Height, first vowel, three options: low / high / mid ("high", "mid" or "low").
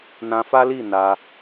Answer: low